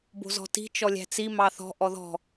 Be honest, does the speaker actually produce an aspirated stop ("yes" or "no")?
no